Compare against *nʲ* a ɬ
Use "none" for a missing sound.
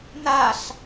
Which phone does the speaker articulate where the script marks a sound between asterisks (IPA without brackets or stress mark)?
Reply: n